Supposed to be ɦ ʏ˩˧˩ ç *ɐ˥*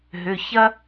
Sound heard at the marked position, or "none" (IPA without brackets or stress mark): ɐ˥